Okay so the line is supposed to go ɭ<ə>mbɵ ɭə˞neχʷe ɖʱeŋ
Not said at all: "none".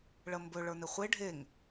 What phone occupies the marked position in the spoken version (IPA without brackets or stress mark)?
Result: ə